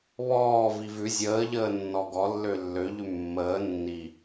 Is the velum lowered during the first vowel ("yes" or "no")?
no